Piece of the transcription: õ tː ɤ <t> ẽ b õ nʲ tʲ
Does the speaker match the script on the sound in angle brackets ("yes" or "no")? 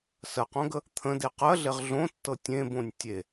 no